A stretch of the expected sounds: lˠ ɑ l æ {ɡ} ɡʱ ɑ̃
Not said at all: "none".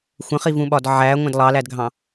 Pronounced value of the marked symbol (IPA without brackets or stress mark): d